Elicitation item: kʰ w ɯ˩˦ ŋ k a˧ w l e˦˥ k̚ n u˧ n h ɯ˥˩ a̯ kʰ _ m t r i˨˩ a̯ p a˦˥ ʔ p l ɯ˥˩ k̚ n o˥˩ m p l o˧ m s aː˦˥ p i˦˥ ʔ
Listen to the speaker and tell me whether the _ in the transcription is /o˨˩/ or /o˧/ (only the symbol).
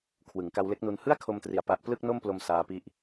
o˧